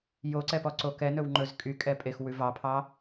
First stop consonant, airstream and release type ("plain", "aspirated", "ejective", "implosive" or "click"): click